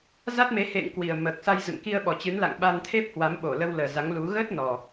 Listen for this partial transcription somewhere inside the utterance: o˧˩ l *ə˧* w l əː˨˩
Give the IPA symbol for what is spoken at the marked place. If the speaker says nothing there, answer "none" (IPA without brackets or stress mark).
ə˧